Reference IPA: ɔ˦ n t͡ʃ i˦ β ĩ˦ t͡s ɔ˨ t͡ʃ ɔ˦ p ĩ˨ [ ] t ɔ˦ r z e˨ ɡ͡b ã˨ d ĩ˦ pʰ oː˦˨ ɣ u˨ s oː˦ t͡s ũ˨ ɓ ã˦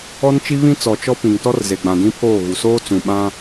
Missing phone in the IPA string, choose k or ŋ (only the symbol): ŋ